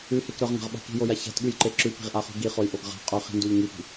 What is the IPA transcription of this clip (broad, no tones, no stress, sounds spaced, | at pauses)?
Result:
ʉ h e k ɾ ɵ ʁ ŋ a̤ ʁ ɓ a̤ k i̤ j o j a ç a̤ t ɠ ʉ j ǃ e ǁ ʉ p i̤ ʁ ʔ a χ ṳ ɡ i χ o j ʔ o ɡ ʁ a̤ qʼ ɵ χ i̤ n d u ʎ ŋ i p i̤